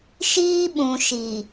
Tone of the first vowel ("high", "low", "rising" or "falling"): high